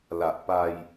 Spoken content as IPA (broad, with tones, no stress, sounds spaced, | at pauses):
l a˨˩ ʔ p a˧ j